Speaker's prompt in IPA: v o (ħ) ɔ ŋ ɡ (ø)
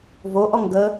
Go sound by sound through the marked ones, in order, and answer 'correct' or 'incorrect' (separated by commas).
incorrect, incorrect